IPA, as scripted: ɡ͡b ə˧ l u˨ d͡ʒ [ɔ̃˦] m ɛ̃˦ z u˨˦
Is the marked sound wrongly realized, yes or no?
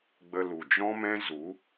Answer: no